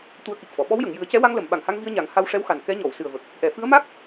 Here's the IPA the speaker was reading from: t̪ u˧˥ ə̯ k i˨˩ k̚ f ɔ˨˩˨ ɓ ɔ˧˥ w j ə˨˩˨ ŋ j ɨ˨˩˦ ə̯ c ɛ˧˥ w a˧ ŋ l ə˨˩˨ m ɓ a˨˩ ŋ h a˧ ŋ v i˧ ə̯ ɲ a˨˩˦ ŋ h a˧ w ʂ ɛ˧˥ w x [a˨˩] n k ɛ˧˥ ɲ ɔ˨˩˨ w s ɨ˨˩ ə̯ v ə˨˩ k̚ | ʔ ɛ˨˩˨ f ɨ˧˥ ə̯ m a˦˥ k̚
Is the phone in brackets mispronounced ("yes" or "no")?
no